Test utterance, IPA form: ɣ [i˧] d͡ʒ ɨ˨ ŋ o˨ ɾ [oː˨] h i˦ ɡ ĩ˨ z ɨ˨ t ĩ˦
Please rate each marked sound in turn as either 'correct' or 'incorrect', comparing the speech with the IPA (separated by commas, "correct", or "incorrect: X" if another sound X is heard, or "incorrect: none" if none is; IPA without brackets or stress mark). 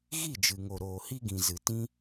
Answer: incorrect: i˦˨, correct